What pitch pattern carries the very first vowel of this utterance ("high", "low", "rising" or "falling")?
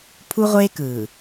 high